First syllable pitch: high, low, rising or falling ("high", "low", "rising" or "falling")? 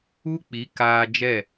high